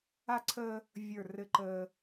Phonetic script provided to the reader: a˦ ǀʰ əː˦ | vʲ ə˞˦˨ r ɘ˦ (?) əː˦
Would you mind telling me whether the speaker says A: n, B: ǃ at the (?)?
B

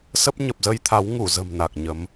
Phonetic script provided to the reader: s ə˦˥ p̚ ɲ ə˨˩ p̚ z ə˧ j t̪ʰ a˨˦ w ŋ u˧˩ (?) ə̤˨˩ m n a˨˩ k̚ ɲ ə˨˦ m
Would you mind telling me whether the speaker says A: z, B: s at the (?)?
A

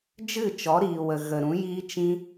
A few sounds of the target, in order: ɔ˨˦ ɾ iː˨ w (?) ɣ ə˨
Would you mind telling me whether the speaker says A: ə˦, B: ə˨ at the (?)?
B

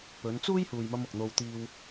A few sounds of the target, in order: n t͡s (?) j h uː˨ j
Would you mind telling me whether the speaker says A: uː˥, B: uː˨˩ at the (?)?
A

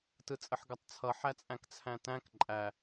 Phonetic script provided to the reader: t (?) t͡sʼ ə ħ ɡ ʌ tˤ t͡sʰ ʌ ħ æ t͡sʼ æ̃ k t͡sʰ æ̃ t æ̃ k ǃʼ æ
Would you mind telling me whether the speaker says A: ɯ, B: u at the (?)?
A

